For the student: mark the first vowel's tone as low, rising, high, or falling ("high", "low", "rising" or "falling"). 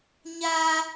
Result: high